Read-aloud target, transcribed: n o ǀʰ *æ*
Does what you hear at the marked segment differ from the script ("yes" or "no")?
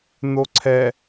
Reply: yes